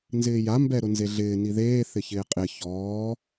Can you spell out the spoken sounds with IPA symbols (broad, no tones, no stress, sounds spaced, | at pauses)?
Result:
n z ɪː j a m b ɛ ɾ ʊ n z e ɮ ɪː n i ð eː θ ɪ ç ɪː qʼ ɪ ç ɔː